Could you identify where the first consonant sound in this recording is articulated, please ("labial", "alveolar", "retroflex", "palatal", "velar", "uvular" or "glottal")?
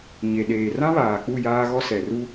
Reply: palatal